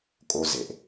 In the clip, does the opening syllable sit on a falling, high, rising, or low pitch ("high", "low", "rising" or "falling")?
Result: high